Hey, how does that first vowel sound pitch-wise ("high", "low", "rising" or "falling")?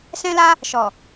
high